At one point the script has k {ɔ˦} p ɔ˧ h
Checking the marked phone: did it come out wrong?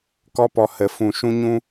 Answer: no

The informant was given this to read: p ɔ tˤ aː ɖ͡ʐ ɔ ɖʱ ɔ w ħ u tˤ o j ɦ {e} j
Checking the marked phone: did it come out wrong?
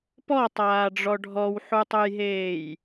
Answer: yes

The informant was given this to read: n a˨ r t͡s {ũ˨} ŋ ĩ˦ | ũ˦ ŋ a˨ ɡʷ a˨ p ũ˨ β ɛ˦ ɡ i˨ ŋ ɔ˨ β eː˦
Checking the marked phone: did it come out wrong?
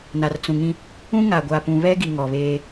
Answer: no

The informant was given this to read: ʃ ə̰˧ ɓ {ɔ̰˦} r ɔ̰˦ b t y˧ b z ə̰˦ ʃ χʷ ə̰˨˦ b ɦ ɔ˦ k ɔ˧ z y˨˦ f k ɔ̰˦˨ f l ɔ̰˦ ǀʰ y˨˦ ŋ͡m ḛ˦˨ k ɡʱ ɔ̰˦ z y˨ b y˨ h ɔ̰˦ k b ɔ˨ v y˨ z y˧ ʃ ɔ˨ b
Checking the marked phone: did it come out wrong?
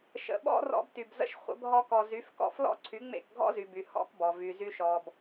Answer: no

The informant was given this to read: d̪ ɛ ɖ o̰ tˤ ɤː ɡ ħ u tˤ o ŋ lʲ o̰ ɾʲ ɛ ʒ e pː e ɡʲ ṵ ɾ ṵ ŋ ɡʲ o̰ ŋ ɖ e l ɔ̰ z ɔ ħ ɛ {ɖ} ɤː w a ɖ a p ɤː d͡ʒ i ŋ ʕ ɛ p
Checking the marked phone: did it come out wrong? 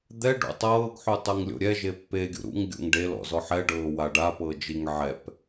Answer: no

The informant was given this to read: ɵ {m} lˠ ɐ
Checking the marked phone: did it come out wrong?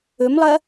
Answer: no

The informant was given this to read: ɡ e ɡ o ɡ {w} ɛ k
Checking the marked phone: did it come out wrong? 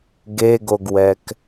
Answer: no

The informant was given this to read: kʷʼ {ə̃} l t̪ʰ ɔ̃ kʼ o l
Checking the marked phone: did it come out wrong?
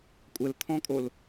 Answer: yes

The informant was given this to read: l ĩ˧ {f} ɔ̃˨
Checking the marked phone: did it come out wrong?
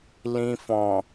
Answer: no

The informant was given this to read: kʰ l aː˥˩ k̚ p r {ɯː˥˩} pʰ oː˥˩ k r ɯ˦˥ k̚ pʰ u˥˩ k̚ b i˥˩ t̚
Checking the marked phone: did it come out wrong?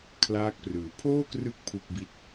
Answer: yes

